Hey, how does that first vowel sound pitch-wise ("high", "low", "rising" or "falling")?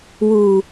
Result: low